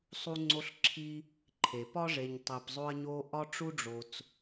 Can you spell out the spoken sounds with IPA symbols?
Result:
sˤ u˦ ŋ͡ǀ o˦ ɬ ǁʰ i˦ | ǃʰ e˩ p ɒ˥ ʐ e˨ ɲ tˤ e˨ p zˤ o˦ ɐ̯ ɲ o˦ ʔ ɒ˥ ʈ͡ʂ u˥ ɖ͡ʐ o˨ t͡s

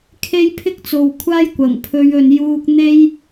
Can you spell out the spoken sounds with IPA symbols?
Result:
kʰ e˥ j pʰ ɪ˥ k̚ t͡s o˨ w kʷʰ aː˥ j kʷ ɐ˨˩ ŋ pʰ ɵ˨˧ ɥ ɵ˨ n j uː˨ k̚ n̪ e˧ j

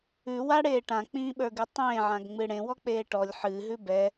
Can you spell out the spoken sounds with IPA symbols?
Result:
ʉ w a ɽ eː ʈ ã k͡p ĩː ɓ ə˞ ɡ ɨ tˤ ẽː ʕ ã ɡ ŋ͡m ɨ ɽ ẽ w ɔ k͡p eː ʈ ɔ lʲ ħ ɨː ɦ ʉ b ɛ

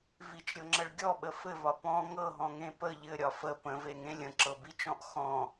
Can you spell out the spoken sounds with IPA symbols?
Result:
v i t͡ʃ ɾʲ ɤ ŋ͡ǁ ə ɭ ɡʲ ɔ ɓ ə f ɘ v ɒ p ɔ̃ ŋ ɤ ɦ ɔ̃ ŋ ẽ p ə ʎ ɘ ɾʲ ɒ f ə p ə̃ v e ŋ ẽ lʲ ə̃ ǁ ɤ b i t͡ʃ ɔ̃ ʔ x ɔ̃

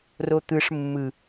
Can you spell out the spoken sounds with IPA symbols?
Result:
r o t̪ ɯ ʂ mː ɯ

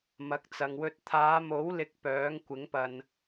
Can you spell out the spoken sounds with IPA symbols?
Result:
m ɐ˨ k̚ t͡s ɐ˨ ŋ w ɵ˧ t̚ t̪ʰ aː˨˧ m o˨˥ w l ɪ˨˥ k̚ p œː˨˥ ŋ kʷ ɪ˨˥ ŋ p ɐ˨ n

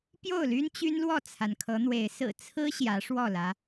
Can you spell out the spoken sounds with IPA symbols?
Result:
p j o˥˨ ʊ̯ l y˦ n t͡ɕ y˦ n l w ɔ˥˨ t͡sʰ a˩ n kʰ ɤ˨˦ n̪ w e˨˦ ɪ̯ s ɹ̩˨˩ t͡sʰ ɹ̩˦ ɕ j ä˨˦ ʂ w ɔ˥˨ l ä˨˦

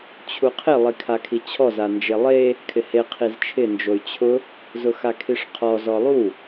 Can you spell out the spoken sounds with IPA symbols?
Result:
t͡ɕʰ u qʰ ɪ lˠ i kʰ a kʰ i t͡ɕʰ ɔ z a n d͡ʒ e lˠ e | kʰ ɪ h e qʰ i z t͡ʃʰ ɪ n d͡ʒ o y̯ t͡ɕʰ ʊ | z ʊ x a kʰ i ʂ qʰ ɔ z ɔ lˠ u

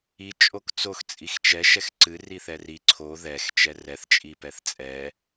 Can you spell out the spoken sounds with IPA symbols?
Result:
i t͡ʃʼ o k t͡s o x t͡sʼ i x t͡ʃ ɛ ʃ ɛ x ǀ ɨ r i θ ɛ r i ǀʰ o ð ɛ x t͡ʃ ɛ r ɛ θ t͡ʃʼ i p ɛ θ t͡sʼ ɛ

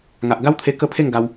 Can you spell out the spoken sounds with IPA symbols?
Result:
ŋ a˨ ʔ ɡ a˦ w t̪ʰ e˧ k ə˦ pʰ e˥˧ ŋ ɡ a˧ w

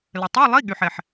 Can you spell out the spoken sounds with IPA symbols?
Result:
l ə˩ tˤ a˧˥˧ lˠ i˧˥˧ ɠ y˩ ħ ɛ˩ ħ

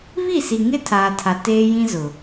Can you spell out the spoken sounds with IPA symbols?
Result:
β i˦˨ s i˨ ŋ ɪ˦ tʰ aː˨ tʰ a˨ t eː˦ j ĩ˦ z ʊ˨

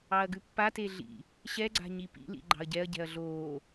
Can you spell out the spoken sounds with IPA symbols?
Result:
ɑ ɐ̯ ɡ ʉ pː a t e ɮ ḭ | ɕ ɛ ɡ͡ǀ a̤ ɲ i p ḭ l ḭ ɡ͡ǃ ɑ̤ ɐ̯ ɟ ɛ ɐ̯ ɟ ɛ̤ ɐ̯ ɮ oː

